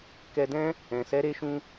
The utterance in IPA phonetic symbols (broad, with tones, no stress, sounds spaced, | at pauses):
k ɛ˧ d ɛ̃˦ | ɛ̃˨ s ɛ˨˦ ɾ e˧ ʃ ũ˧